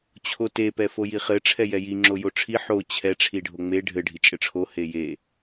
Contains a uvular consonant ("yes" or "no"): yes